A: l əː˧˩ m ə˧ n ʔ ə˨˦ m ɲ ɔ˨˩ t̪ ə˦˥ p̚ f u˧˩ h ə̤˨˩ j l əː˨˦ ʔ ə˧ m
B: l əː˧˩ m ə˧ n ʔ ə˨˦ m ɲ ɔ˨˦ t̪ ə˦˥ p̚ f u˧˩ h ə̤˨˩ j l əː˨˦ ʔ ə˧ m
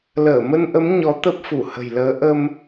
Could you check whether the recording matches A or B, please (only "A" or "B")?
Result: B